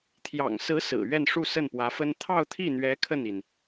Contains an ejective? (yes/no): no